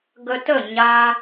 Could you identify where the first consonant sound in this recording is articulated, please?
velar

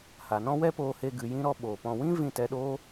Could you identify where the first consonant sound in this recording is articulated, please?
glottal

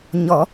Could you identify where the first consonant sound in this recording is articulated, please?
palatal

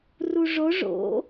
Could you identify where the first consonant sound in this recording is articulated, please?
alveolar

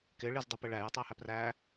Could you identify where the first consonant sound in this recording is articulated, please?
velar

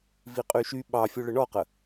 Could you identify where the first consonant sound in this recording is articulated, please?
labial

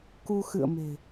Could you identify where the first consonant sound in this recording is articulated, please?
velar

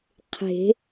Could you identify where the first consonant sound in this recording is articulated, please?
uvular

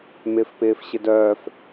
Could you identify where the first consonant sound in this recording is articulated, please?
labial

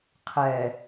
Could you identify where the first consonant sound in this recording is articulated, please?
uvular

